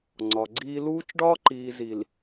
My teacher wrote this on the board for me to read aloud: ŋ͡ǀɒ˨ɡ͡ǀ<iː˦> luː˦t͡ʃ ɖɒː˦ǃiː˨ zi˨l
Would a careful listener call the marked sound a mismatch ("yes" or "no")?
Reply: no